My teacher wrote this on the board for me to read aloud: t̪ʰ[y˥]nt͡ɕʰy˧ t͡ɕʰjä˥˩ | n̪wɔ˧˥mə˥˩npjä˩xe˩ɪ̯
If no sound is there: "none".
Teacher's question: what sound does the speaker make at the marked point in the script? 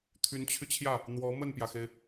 y˧˥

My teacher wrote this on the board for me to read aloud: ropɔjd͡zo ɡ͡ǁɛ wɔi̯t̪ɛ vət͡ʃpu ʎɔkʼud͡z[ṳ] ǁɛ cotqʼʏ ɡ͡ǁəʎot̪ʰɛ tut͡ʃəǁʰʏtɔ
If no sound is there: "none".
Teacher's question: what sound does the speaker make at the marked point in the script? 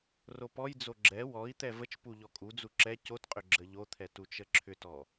u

